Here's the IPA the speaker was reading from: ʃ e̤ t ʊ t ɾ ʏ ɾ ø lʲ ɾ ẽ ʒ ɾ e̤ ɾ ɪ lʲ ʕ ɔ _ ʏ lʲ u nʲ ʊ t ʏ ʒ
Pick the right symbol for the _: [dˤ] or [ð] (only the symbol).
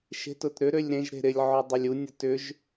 dˤ